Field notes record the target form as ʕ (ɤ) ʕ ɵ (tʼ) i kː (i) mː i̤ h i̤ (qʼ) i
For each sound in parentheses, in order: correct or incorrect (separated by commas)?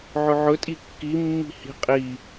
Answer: incorrect, correct, correct, correct